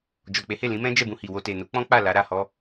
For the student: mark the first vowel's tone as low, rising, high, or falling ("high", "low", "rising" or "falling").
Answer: low